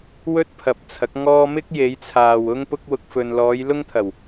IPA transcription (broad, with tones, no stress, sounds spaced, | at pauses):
w ɵ˥ t̚ pʰ ɐ˨ p̚ t͡sʰ ɐ˨˥ k̚ ŋ ɔː˥ m ɪ˥ k̚ j e˨˧ j t͡sʰ aː˨ w ʊ˥ ŋ p ʊ˥ k̚ w ʊ˨ k̚ f ɵ˨ n l ɔː˨˧ j l ʊ˥ ŋ t̪ʰ ɐ˨˩ w